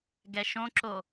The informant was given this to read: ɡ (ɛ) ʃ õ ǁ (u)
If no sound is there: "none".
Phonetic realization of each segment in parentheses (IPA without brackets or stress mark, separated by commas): ɛ, o